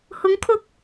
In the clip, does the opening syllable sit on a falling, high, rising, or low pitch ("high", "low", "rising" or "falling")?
rising